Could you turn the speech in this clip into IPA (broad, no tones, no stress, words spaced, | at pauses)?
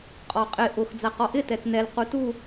qʼɔqʼɪ ʔʊx d͡zaqɔʔɪ tɛtnɛl qutu